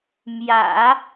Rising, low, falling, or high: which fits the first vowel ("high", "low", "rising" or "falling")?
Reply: low